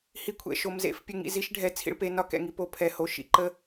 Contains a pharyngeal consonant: no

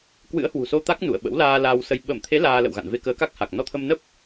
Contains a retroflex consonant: no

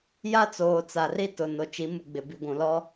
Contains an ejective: no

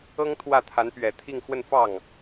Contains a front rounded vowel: no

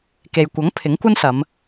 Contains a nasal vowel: no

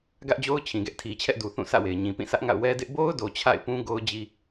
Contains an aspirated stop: yes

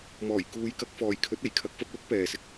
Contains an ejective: no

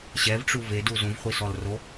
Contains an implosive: no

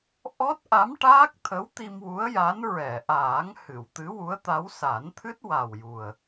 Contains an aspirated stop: yes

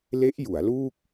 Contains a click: no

